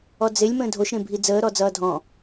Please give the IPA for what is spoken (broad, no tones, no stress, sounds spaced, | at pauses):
ɔ d͡z e lʲ m ə̃ː dʱ o ʃ ɾ ẽ bʱ i d͡z əː ɾ ɔ d͡z ʌː dʱ ɔ̃